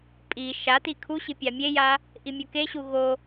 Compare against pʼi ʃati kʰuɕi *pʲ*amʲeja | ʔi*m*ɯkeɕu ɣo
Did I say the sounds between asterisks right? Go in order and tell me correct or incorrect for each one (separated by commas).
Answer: correct, incorrect